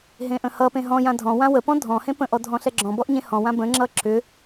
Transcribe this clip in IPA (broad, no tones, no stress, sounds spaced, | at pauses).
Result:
ɦ ẽ ʔ ə̃ h ʌ p ẽ ɦ ɔ̃ j ã dʱ ɔ̃ w ã w ə p ɔ̃ dʱ ɔ̃ h ẽ p ə̃ ʔ ɔ dʱ ɔ̃ ɬ ɛ ɡ͡ǁ ɔ̃ b ɔ ʔ ɲ ẽ h ɔ̃ w ã b ə̃ ŋ͡ǁ ʌ ǁ ʏ